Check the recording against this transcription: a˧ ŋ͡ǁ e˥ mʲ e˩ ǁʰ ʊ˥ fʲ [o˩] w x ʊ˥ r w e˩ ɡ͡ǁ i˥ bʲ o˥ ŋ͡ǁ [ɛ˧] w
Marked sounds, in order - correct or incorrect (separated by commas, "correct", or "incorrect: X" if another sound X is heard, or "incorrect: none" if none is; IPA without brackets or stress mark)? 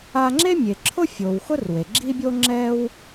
correct, incorrect: ɛ˥